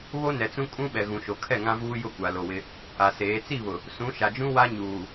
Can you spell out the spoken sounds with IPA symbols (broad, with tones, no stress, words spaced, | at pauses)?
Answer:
βo˦nɛ˨t͡sũ˦ kʼũ˦ɓɛ˨ɣũ˨ʃo˨ kʰɛ˦˨ŋã˦vuː˦jʊ˦˨ kʷa˨lo˨wɪ˦ | a˨seː˨˦ t͡si˦˨βʊ˨ | sũ˨˦ʃa˨d͡ʒũ˦ wa˦ ɲuː˨